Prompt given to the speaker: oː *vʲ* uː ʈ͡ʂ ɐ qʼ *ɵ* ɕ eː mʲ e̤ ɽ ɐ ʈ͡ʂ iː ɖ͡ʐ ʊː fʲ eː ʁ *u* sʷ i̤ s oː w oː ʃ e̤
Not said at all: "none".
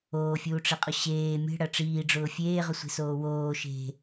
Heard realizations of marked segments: fʲ, ʊ, ʊ

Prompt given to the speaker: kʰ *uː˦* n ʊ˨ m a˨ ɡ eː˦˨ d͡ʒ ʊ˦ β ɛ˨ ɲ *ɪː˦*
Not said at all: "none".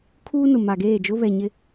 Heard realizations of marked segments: uː˦, ɪ˦

